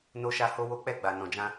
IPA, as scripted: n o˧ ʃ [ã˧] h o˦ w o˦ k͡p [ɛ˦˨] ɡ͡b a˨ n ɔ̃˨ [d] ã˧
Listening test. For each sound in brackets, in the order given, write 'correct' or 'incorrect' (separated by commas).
incorrect, correct, incorrect